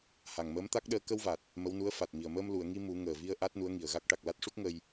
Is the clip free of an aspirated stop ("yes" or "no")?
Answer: yes